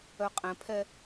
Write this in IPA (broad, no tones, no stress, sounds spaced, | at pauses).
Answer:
œ qʼ ɛ̃ pʰ ɛ